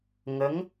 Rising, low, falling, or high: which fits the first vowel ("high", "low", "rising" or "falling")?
rising